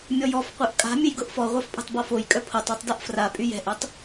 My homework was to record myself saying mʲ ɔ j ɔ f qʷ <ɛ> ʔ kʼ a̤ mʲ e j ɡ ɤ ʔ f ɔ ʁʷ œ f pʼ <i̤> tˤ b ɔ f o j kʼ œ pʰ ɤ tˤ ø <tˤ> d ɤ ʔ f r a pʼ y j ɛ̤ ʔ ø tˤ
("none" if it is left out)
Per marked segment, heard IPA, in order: œ, e̤, tˤ

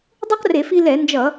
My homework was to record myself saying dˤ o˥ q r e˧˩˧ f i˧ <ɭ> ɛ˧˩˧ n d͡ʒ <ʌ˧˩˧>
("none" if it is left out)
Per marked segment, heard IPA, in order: l, ʌ˧˩˧

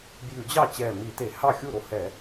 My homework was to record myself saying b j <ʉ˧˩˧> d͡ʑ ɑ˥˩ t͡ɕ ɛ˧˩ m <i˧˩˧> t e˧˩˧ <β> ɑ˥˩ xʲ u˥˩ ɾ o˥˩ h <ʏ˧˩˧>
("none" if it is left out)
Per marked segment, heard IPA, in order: ʉ˧˩˧, i˧˩˧, h, ɛ˧˩˧

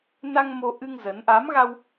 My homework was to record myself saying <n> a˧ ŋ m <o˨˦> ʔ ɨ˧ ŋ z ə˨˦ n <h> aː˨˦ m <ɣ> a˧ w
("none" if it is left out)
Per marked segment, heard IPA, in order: n, o˧, ʔ, ɣ

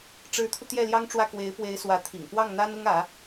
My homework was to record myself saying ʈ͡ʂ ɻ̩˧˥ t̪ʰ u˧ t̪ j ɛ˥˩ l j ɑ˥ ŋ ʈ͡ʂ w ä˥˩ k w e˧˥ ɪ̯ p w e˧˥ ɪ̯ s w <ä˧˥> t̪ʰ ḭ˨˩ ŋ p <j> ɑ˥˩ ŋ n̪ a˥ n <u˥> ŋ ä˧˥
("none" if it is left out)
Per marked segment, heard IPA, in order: ä˧˥, w, ʊ˥

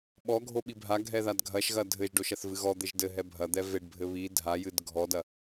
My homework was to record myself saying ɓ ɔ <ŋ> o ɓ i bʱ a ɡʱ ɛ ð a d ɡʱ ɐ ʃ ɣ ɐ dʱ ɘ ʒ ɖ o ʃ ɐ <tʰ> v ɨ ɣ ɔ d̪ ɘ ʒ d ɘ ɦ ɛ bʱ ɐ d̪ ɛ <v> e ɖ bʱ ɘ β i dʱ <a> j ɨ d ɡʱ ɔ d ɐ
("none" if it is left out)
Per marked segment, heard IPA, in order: ɡʱ, θ, v, a

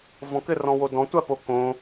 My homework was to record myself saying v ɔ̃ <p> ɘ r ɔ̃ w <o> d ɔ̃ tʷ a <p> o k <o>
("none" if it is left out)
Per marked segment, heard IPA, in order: k, o, p, õ

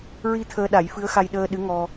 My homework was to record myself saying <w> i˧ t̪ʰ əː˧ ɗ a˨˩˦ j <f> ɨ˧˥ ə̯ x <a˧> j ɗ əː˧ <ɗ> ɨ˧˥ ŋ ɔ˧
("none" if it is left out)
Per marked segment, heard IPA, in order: ɹ, f, a˧, ɗ

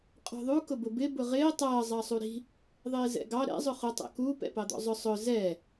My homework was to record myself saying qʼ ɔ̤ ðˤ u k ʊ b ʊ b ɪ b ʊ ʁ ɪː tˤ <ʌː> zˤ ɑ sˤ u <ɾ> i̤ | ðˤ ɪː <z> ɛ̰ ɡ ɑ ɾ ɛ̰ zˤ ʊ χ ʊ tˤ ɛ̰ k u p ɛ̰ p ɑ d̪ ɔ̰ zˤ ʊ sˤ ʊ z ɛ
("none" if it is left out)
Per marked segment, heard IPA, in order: ʌː, ɾ, z

